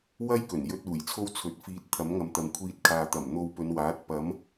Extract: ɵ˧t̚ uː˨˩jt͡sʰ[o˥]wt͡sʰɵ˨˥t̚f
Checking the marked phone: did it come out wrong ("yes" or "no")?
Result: no